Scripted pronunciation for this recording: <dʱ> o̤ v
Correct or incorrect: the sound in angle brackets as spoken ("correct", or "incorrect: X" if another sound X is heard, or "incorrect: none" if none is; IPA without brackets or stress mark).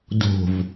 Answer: incorrect: d